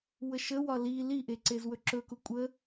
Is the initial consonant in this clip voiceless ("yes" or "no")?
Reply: no